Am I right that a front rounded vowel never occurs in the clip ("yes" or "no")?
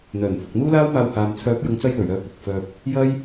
no